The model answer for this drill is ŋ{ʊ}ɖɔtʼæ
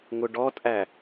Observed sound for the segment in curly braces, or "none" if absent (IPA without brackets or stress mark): ʊ